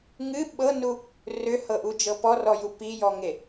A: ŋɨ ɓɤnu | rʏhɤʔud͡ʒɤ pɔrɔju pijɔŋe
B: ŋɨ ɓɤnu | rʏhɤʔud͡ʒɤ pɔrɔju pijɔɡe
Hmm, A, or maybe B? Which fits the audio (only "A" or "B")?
A